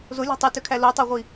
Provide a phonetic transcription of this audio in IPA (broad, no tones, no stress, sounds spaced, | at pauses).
z o lʲ ɑ̤ tˤ ɯ t ø kʰ æ l o tˤ ɑ ʁʷ i